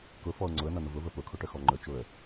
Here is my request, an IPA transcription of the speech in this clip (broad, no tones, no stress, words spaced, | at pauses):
kʊfɔʊ̯ ŋ͡ǀʊə̯nʌnʊ vʊvə pʊkʰʊʈəxɔ ŋ͡ǃə˞t͡ʃʊə̯